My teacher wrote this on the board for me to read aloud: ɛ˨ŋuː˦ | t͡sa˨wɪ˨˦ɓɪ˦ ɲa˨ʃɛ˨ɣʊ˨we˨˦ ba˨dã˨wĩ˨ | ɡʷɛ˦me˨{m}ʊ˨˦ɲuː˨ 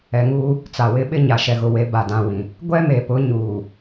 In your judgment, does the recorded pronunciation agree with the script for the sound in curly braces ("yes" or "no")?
no